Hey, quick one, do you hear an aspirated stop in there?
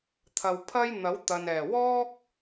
yes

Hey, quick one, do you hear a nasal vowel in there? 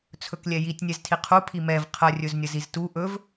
no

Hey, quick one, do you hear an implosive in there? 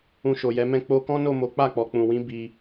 no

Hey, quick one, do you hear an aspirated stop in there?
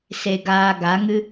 no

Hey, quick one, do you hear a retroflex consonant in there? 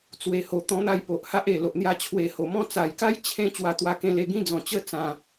no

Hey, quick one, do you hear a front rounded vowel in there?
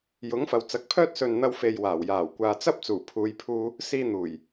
yes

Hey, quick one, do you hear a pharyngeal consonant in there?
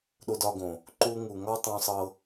no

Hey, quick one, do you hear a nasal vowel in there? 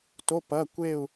no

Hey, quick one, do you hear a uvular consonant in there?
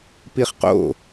yes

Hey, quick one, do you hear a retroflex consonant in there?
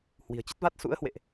no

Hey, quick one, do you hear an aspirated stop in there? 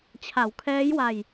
yes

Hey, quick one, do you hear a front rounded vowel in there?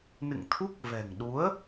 no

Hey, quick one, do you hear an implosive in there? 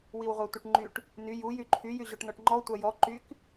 no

